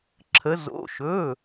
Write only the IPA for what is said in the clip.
ǁʰə˩˧ zo̰˩˧˩ʃɵ˩˧˩

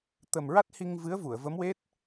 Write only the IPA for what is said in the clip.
t̪ə˨˩mɹa˦˥t̚hi˧ŋ vɨ˧˥ə̯vu˨˩˨ə̯və˧˥mwe˦˥t̚

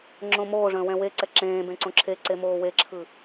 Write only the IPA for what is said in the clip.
ŋ͡ǁõmoːʐə̃ː wɛ̃weǀɛ ǁẽːbẽ ǀõǁʰeǀe moːweǁʰɯ

